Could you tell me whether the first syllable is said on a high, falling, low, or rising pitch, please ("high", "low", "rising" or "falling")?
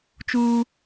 high